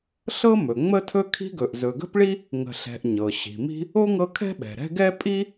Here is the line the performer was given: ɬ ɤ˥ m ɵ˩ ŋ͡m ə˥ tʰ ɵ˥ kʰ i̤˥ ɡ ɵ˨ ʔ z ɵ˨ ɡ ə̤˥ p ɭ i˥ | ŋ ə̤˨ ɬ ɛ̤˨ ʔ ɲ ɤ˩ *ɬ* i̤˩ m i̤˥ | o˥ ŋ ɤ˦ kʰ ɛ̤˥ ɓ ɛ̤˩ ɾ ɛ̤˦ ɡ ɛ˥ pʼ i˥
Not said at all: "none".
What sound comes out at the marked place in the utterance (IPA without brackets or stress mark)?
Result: ɕ